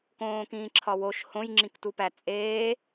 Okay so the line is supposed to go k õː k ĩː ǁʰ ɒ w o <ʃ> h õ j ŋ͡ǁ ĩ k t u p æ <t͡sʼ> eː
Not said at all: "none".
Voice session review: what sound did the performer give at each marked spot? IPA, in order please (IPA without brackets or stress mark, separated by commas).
ʃ, t͡sʼ